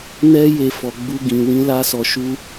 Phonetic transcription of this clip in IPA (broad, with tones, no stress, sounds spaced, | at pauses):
n ɛ˦ j e˧ f ɔ˨ ɡ͡b u˧ ɡ ĩ˨ w ĩ˧ l a˦ s ɔ˧ ʃ u˦